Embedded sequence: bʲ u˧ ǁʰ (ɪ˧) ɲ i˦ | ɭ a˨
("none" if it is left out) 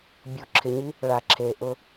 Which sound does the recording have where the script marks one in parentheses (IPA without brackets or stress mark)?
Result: ɪ˧